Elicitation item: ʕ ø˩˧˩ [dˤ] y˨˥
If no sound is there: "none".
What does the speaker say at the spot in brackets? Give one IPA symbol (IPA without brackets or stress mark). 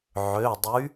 dˤ